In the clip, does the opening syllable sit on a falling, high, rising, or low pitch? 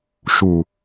low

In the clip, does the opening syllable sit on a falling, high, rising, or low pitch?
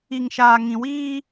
low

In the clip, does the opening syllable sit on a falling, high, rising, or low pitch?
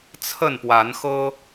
falling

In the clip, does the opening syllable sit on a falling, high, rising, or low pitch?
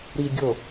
low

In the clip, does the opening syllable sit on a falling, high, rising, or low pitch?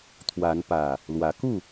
rising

